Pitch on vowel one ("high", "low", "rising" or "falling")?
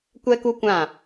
high